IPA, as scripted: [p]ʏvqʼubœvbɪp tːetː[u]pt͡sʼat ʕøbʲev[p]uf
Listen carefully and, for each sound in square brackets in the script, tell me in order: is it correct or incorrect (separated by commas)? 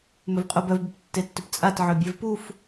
incorrect, incorrect, correct